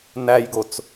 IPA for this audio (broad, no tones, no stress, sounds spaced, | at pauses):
n æ j ɡ o t͡s